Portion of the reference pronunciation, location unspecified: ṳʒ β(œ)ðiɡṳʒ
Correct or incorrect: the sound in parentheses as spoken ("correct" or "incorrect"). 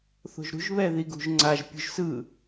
incorrect